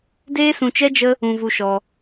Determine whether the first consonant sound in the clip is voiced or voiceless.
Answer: voiced